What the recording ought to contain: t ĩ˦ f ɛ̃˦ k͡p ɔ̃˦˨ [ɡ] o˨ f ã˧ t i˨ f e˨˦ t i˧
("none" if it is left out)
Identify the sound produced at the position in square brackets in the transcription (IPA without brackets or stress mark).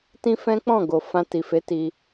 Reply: ɡ